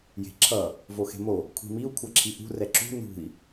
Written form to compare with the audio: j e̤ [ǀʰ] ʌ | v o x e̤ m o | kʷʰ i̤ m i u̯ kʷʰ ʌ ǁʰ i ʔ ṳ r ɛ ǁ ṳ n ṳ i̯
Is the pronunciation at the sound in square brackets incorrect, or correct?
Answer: incorrect